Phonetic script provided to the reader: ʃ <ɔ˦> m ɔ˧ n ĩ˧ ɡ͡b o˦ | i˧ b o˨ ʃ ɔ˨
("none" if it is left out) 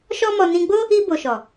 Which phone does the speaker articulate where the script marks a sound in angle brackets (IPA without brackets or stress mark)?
ɔ˦